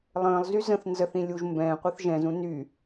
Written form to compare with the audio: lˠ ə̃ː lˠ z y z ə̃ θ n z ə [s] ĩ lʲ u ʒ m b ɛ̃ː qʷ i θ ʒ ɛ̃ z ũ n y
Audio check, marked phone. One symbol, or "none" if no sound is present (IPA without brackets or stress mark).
θ